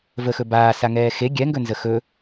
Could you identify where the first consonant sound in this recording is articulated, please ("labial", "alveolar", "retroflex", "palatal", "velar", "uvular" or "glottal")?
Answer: labial